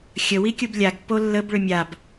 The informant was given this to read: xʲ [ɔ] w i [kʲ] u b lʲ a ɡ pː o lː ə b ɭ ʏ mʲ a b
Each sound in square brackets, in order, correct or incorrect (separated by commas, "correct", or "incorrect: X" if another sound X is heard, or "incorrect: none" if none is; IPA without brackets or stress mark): incorrect: ə, correct